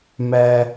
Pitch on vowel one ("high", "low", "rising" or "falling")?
high